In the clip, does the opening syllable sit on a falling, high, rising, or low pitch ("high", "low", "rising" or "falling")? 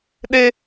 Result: high